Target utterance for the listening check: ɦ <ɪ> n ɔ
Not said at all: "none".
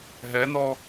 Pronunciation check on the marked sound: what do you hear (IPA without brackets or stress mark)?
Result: ɛ